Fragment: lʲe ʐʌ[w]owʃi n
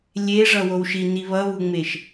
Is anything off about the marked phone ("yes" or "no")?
no